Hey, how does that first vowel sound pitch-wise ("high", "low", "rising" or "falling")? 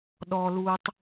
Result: low